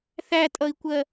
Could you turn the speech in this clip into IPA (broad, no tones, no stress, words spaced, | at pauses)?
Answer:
θætʼʌi̯kʷɜ